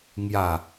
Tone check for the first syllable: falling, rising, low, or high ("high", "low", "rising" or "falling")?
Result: falling